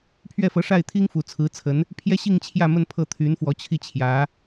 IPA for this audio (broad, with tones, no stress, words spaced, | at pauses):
pʰɥɛ˥˩fɤ˧˥ʂa˥˩ɪ̯t̪ʰi˥ŋ fu˨˩t͡sʰɹ̩˧˥t͡sʰə˧˥n | pʰjɛ˥ɕi˥˧ŋ t͡ɕʰjä˥˧mə˥˧n pʰɤ˥˩t̪ʰy˧˥nfwɔ˧˥t͡ɕʰi˥˩ t͡ɕʰjä˧˥